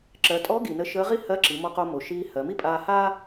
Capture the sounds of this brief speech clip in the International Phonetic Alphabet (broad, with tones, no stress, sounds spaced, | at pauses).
ǁ ɜ˩˧ tʼ ɔ˧˥ ɡ i˩ n ə˧ ʃ əː˧˥ ʁ i˥ h ɜ˧˥ ǁ i˩˧ m ɔ˧ q o˧ m o˩ ʃ iː˧ h ɜ˩˧ m i˥ pʼ aː˧ h aː˥